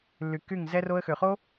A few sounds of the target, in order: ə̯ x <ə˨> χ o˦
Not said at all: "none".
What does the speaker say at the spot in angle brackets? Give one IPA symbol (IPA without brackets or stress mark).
ø˨